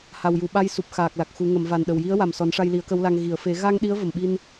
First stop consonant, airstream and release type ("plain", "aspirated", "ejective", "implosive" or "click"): implosive